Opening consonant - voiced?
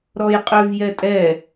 yes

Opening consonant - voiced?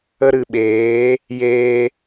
yes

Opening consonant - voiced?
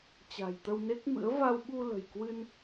no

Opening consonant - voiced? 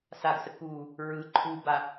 no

